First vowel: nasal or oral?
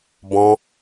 nasal